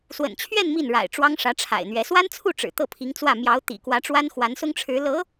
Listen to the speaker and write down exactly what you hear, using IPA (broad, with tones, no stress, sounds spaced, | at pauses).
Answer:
s w ə̰˨˩ n t͡ɕʰ ɥ ɛ˥˧ n m i˥˩ n ɻ a̰˨˩ ɪ̯ ʈ͡ʂ w ɑ˥ ŋ ʂ ä˧˥ ʈ͡ʂʰ a̰˨˩ ɪ̯ n̪ ɥ ɛ˧˥ s w a˥ n t͡sʰ u˥˩ ʈ͡ʂ ɻ̩˨˩ t̪ ɤ˥˩ pʰ i˧˥ ŋ t͡s w ä˥˩ m j ɑ˧˥ ʊ̯ t̪ ḭ˨˩ k w ä˧˥ ʈ͡ʂ w a˥ n x w a˧˥ n s ʊ˥ ŋ ʈ͡ʂʰ ɻ̩˧˥ l ɤ˧˥